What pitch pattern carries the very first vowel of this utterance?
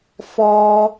high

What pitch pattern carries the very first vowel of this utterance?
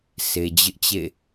low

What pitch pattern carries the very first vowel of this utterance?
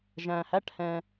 low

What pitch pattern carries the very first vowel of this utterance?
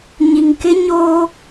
low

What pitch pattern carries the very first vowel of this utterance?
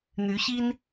rising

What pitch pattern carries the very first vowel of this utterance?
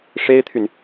high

